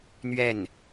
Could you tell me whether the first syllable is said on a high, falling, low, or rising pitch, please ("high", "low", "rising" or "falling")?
falling